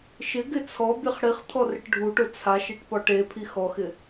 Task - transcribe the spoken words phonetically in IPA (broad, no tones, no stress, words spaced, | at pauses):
ʃɪɡɪ t͡sʰɔbʲeχ ɽiχt̪ʰɔ rɪʈɖʱuʈo t͡sʰaʃeʈ pɔʈepʰi xɔxɪ